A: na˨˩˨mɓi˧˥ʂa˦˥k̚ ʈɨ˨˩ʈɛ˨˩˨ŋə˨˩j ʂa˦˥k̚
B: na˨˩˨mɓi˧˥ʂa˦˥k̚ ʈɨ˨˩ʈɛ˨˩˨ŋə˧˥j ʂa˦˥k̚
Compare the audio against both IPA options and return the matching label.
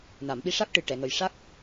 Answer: A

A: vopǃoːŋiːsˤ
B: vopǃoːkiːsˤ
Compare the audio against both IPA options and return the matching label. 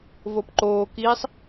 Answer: B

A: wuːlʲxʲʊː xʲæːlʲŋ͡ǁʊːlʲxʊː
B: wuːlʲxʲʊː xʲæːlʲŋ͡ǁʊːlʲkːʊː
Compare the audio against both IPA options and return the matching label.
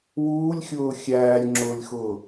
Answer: A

